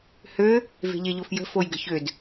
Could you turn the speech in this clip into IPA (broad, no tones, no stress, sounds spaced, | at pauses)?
h ø | v e̤ ʎ e ʎ o f j ə̤ f o j ɡ ə̤ ç ø d